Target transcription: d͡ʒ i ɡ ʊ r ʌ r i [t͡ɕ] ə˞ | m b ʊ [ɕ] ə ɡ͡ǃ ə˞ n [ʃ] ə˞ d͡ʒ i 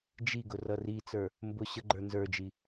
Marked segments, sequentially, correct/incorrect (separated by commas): incorrect, correct, incorrect